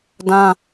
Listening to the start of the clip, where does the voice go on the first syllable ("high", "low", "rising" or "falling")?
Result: high